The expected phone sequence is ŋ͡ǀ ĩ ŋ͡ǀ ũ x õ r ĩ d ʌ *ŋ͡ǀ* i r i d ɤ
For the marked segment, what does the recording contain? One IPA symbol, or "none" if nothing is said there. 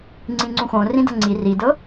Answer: ŋ͡ǀ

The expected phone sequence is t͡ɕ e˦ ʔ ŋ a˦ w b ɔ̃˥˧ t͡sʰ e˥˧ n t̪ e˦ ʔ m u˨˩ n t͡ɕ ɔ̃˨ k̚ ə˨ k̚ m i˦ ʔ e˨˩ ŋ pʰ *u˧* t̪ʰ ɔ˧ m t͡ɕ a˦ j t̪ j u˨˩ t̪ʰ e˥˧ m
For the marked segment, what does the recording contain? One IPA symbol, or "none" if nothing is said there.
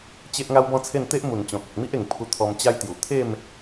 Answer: u˧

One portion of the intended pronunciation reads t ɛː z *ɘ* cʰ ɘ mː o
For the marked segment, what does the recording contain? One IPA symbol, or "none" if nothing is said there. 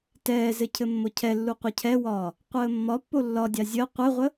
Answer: ɘ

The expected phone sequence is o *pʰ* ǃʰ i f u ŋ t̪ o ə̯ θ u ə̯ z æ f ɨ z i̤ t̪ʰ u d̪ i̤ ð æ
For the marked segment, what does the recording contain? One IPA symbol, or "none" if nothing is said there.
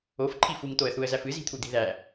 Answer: f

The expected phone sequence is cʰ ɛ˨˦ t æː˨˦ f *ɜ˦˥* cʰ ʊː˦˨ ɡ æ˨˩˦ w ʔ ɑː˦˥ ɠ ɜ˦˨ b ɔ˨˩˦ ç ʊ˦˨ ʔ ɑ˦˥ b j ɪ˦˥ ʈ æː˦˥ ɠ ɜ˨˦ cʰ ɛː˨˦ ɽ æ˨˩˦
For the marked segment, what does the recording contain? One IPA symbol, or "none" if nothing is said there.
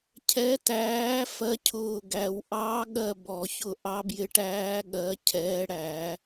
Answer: ɜ˦˥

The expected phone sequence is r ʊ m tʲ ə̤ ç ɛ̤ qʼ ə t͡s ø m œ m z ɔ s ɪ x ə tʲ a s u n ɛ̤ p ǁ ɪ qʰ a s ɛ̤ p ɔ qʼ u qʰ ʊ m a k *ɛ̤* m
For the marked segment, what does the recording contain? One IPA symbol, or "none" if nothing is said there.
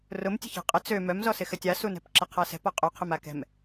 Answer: ɛ̤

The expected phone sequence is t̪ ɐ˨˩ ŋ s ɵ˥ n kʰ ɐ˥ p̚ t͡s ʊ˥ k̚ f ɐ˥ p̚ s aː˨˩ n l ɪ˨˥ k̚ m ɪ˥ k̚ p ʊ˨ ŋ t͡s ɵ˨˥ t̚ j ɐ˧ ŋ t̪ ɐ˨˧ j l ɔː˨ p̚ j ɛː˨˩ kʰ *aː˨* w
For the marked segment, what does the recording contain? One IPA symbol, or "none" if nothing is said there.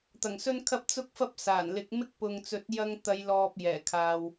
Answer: aː˨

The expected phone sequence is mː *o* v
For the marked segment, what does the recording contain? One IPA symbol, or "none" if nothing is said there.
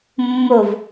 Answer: o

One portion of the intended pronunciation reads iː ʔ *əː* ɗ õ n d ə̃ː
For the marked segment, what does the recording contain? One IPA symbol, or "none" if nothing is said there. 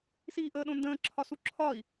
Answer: əː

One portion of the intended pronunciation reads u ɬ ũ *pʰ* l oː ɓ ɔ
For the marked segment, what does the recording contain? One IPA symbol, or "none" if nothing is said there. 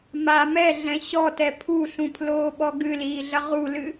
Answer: pʰ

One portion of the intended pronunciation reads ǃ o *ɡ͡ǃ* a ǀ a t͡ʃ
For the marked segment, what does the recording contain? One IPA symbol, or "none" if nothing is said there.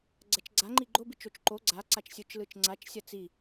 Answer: ɡ͡ǀ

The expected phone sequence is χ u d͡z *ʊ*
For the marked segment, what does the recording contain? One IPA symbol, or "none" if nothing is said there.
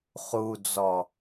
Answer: ɔ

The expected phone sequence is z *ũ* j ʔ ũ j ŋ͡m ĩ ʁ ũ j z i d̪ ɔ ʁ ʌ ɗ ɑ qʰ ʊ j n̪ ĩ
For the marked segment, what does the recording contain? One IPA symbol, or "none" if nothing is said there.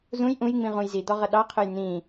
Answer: ũ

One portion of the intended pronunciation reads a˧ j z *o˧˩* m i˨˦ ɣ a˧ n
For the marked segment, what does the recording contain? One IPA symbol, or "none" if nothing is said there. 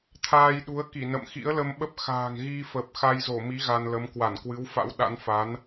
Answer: o˧˩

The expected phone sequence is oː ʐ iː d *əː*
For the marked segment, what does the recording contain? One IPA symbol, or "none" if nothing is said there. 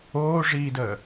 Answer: əː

